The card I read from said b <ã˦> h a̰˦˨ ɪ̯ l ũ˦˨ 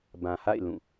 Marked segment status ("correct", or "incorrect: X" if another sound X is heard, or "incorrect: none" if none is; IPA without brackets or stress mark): incorrect: ã˨